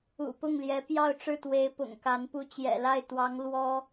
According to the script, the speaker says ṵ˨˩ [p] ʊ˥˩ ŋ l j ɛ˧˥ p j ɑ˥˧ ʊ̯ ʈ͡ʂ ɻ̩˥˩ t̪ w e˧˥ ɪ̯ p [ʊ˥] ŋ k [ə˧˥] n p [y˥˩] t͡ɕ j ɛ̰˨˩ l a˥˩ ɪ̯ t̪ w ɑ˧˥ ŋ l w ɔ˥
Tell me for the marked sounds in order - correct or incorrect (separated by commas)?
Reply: correct, incorrect, incorrect, incorrect